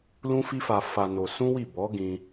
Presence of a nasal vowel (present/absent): present